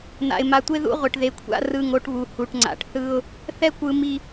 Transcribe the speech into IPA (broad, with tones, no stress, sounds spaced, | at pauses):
n̪ a̰˨ ɪ̯ m a˨ tʷ e˦ ð ṵ˦ ʁʷ e˨ ʈ ð e˨˦ kʷʰ a̰˦ r ɯ˦˨ ŋ o˦ ʈ β u˨ h u˨ ʈ ŋ͡ǀ a̰˨ ʈ θ ɯ˦ ʊ̯ | θ ɛ˦ kʷ ɯ˨ m i˨